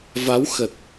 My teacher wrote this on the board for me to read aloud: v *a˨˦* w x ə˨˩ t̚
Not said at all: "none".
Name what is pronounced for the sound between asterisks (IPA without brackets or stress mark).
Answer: a˨˦